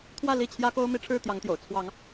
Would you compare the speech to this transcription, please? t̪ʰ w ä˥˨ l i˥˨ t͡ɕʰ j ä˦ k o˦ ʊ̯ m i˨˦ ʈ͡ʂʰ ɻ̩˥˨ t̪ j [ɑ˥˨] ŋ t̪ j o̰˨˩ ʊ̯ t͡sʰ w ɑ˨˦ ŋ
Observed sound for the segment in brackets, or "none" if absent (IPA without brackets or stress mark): ɑ˨˦